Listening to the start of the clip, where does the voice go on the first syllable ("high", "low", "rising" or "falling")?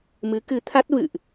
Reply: rising